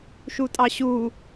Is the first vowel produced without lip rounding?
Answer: no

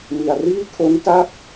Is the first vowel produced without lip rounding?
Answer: yes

